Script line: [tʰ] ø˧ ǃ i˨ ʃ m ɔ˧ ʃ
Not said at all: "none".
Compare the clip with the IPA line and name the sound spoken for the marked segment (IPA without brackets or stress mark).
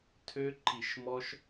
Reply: tʰ